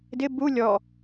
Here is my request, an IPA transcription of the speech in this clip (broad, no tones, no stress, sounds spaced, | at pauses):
d ɪ b u lʲ ɔ